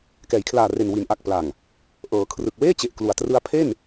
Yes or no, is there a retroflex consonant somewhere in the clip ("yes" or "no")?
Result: no